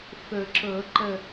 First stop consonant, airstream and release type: click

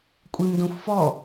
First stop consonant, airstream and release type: ejective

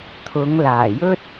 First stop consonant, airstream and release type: aspirated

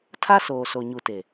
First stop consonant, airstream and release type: aspirated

